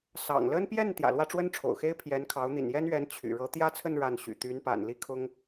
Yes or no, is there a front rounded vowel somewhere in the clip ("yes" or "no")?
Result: yes